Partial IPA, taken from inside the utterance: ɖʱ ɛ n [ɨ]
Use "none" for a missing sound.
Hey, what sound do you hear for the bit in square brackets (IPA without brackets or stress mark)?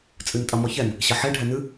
ɨ